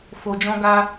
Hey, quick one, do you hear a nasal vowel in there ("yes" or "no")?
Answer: yes